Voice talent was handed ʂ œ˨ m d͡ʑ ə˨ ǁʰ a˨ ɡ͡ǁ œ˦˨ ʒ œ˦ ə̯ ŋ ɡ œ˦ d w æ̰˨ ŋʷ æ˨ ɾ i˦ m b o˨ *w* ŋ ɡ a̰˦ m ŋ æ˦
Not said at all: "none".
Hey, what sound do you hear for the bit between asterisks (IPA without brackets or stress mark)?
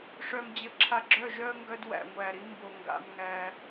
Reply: none